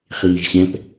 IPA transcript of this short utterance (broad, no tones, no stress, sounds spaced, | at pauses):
χ iː ʒ ɕ ɛ̃ p